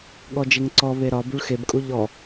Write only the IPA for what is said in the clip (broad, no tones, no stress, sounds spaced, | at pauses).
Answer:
ɠ ɔ d͡ʒ e ŋ ǀ ɔ β e ɾ ɒ b u ɭ x e b kʼ u ʎ ɔ